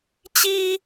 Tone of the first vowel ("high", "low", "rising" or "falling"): high